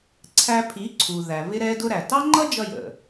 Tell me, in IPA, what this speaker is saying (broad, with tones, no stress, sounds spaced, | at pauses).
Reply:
ǀʰ æ˧ pʰ i˩˥ ǀʰ u˩ ð æ˩ v ɪ˧ ɾ ɛ˧ d ʊ˧ ɾ æ˩ t ɑ˥ ŋ͡ǃ ʌ˥ d͡ʒ ʌ˧ j ə̰˩